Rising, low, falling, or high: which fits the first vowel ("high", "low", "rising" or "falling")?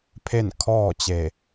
falling